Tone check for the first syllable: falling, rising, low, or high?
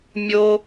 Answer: high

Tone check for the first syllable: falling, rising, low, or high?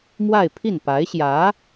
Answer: falling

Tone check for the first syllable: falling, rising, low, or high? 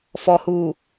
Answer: low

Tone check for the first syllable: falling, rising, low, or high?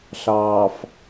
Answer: low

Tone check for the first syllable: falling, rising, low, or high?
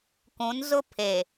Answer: rising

